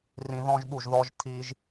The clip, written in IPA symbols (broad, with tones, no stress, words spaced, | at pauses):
rĩ˧ðɔ̃˦ʒɓu˦˨ʒ ðɔ˧ʒtʰi˧ʒ